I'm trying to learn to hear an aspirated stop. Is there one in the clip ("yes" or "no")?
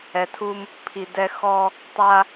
yes